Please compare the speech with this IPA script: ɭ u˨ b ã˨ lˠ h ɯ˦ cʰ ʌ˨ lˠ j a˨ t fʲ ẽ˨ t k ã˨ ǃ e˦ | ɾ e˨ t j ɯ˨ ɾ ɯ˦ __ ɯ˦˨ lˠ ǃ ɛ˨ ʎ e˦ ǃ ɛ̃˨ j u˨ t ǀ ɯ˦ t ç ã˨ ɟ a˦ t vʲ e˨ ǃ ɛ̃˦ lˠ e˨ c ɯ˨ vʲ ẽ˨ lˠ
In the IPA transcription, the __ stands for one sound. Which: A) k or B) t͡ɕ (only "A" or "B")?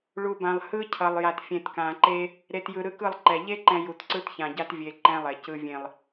A